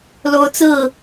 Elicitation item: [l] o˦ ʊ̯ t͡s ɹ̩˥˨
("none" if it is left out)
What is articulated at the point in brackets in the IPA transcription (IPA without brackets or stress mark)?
l